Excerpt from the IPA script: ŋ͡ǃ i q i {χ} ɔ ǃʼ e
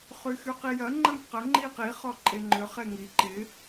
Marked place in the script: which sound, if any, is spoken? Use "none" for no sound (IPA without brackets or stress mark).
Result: χ